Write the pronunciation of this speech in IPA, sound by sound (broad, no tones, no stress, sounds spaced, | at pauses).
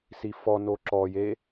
s i f ɔ n o ǁ ɔ j e